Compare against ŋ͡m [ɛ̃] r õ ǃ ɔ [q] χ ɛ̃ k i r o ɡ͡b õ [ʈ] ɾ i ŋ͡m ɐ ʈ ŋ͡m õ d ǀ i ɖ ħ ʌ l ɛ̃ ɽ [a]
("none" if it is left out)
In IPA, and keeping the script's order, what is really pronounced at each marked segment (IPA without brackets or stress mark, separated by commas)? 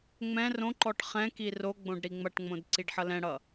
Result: ɛ̃, ʈ, ɖ, ʌ